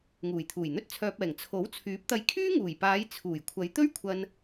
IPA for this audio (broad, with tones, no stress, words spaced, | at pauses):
ŋuː˨˩jt̪ʰuː˨˩jn̪ɵ˥t̚ t͡sʰœː˧p̚ɛː˨˩ŋ t͡sʰo˨˥wt͡sʰyː˨˥p̚t̪ɐ˧j kʰyː˥ŋuː˨˩jpaː˨˧j t͡sʰuː˨˩j kʷʰɐ˨˧jt̪ɵ˥ɥkʷʰɐ˧n